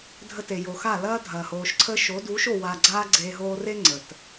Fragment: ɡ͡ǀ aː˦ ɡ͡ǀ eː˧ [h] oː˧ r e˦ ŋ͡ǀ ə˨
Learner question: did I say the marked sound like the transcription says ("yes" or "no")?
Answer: no